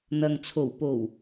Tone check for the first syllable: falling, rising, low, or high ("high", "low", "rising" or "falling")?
low